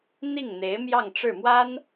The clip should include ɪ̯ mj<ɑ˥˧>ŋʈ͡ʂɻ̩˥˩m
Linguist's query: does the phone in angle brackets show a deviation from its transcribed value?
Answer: no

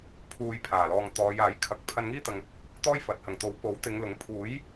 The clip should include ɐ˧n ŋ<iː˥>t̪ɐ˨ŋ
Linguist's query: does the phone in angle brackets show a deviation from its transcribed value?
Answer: no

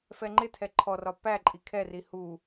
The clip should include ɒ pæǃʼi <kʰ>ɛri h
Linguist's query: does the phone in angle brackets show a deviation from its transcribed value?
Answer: no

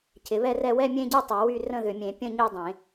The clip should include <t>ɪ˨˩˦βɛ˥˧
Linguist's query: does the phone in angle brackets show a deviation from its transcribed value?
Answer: yes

